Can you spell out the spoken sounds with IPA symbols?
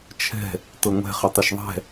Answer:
t͡ʃʰ ɛ̤ | t ɤ ŋʷ ɛ̤ χ ə tˤ ɐ ʃ ðˤ ɛ̤

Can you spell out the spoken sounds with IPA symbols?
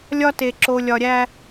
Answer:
lʲ ɒ˦ t e˨ ǁ o˨ lʲ ɒ˨ ɾʲ æ˦

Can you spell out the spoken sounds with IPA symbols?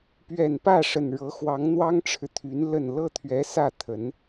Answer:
p ɥ ɛ˨˩ n p ä˥˩ ʂ ə˨˩ n ɻ ɤ˧˥ x w ɑ˧˥ ŋ n̪ w ɑ˥ ŋ ʈ͡ʂʰ ɻ̩˨ t̪ʰ y˧˥ n l ə˥˧ n l ɤ˥˩ t̪ʰ ɥ ɛ˧˥ s ä˥˩ t̪ʰ ə˧˥ n

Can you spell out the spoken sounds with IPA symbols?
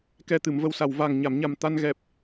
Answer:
k ɛ˧ t̪ ɨ˨˩˨ m v ə˧ w s a˨˩ w v a˨˩ ŋ ɲ a˨˩˨ m ɲ a˨˩ m t̪ a˧ n ɣ ɛ˨˩ p̚

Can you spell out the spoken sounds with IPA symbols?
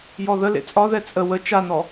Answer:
j ɔ ð ə l ḛ t͡sʼ ɒ ð ɛ t͡sʼ ə w ə t͡ʃ a n ɔ

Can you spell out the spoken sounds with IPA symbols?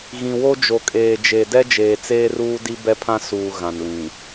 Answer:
ɣ ĩ˨ w o˦ d͡ʒ o˨ kʼ eː˨ d͡ʒ e˨ d ɛ˦ d͡ʒ eː˨ t͡s eː˦ r uː˦ d i˦ b ɛ˦ pʰ ã˦ s uː˨ ɣ ã˨ n l ĩ˨

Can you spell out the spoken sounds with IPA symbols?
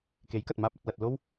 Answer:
k e˨˥ j k ɐ˨ t̚ m aː˧ p̚ ɐ˧ t̚ l ɐ˧ t̚ l o˥ w

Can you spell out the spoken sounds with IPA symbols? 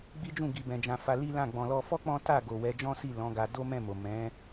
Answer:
ɡ͡b i˦ d͡ʒ ũ˦˨ ɡ i˧ b ɛ̃˧ d͡ʒ ã˧ f a˧ l i˦ l ã˦˨ ɡ͡b ɔ̃˨ l ɔ˧ f ɔ˦ k͡p ɔ̃˦ t a˦˨ ɡ o˨ w ɛ˨˦ d͡ʒ ɔ̃˦ s i˦˨ l ɔ̃˨˦ ɡ a˧ d o˦ m ɛ̃˦˨ m o˨ m ɛ̃˨˦

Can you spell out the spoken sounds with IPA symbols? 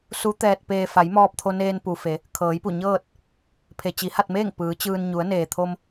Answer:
s u˧˥ t̪ ɛː˧ t̚ p eː˧ f a˩˧ j m ɔː˧ p̚ t̪ʰ o˧ n eː˧ n p u˩ f e˩˧ | kʰ ɤː˩˧ j p u˧˩ ɲ ɤː˥˨ t̚ | pʰ e˩ t͡ɕ i˩˧ h a˥˨ t̚ m eː˥˨ ŋ p ɯː˩˧ t͡ɕ ɯː˧ n ɲ u˩˧ ə̯ n eː˩ t̪ʰ o˧ m

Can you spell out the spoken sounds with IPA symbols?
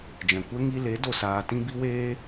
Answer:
d͡ʒ ɛ̃˨ kʷ ɛ˦ ŋ i˧ l e˨˦ d o˧ s aː˧ t ĩ˦ b i˦ w eː˦

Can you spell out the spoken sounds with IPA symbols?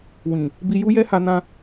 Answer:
w ĩ˨ | b i˧ j u˦ j ɛ˦ h a˧ n ã˦

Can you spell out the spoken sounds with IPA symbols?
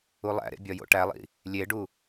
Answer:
u lˠ æ̰ ɾ ḛ bʲ ɒ j o̰ ʈ æ lˠ ḭ | lʲ e ɖ u

